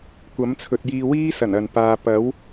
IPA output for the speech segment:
kʷɐ˨˥mt͡sʰɵ˨t̚jiː˧ wiː˥sɐ˨˩n ɐ˨npaː˧ pɐ˨˥w

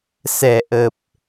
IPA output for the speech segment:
sɛ˨˩ʔə˨˩p̚

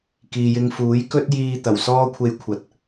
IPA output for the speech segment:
kiː˨jɪ˧ŋ fuː˨˥jkɵ˥t̚jiː˧ t̪ɐ˨˩wsɔː˥kʷʰe˧jkʷʰɐ˨˥t̚

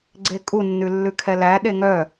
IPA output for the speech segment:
ɡ͡ǀekʼunːʉ lːʉkʰɛlæɗe ŋœ

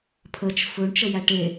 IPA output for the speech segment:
pʰət͡ʃ fɵɳt͡ʃəjæ ʈe

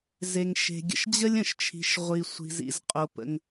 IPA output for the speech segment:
ze˩ŋ ʃe̤˩ɡʲə̰˩ʃd͡ʑə˥lʲ ə̃˩ʃt͡ʃʰi̤˩ʃ ʁʷi˩sʷi̤˩zḭ˩z qʼo˩pə̰˩ŋ

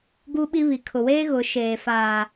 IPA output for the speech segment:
ɡu˦ɓi˦βi˨ kʰʊ˨weː˦ ɣʊ˨˦ ʃeː˨faː˨

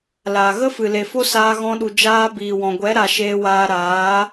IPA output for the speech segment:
laː˨ɣə˦ fɨ˨le˨fo˦ saː˧ɣɔ̃˧ ɗu˨d͡ʒaː˧ biː˨wɔ̃˨ɡʷɛ˨˦ɾa˨ ʃeː˧waː˧ɾaː˨˦

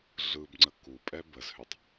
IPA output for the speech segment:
ɮɯbŋ͡ǀə ku pʼɛbəzhʏtˤ

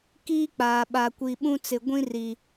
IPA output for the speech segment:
kiː˦k͡paː˨ ɓa˨kʷi˨ ɓũ˦t͡sɪ˨ ɡʷĩ˦ri˨

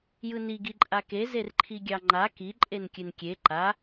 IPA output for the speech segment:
jɯni ɡiǃʼake zerǃʰiɡʲɑŋ͡ǃa ki ǃʼenkʲɨnkʲe ǃa

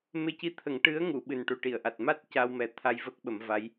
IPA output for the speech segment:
me˧ci˧t̪ʰə˨˩˦ŋ ʈɨ˧˥ə̯ŋu˨˩˨ ɓɨ˨˩nʈu˨˩ʈi˨˩˨ə̯ʔa˨˩t̚ ma˦˥t̚ ca˧wmɛ˨˩t̪ʰa˧j vəː˦˥k̚ɓə˨˩˦mva˧˥j

